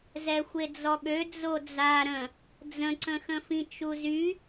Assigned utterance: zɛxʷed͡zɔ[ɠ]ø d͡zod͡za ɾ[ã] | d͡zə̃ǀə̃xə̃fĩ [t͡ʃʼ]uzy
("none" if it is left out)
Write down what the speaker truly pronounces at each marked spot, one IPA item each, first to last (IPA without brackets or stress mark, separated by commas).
ɠ, ə̃, t͡ʃ